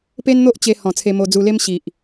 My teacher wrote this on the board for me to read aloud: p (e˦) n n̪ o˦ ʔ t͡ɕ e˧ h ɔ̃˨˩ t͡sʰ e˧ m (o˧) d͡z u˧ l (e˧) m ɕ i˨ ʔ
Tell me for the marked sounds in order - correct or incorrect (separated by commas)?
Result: correct, correct, incorrect